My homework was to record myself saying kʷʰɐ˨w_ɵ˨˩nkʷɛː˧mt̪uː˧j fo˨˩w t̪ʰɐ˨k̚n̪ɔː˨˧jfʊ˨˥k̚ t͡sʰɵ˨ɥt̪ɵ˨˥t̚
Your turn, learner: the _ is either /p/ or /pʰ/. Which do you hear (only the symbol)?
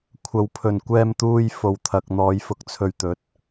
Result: pʰ